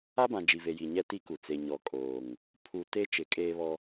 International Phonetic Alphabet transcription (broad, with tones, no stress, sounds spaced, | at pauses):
a˦ b ã˨ d͡ʒ i˨ v e˨ j i˨ ɲ ɛ˦ t i˦ k u˨ t͡s e˨ ɲ ɔ˨ kʼ oː˨ ŋ | pʰ u˨ t e˦ t͡ʃ ɪ˨˦ kʼ eː˦ β ɔ˦